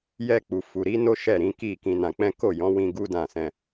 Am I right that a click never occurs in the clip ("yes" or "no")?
yes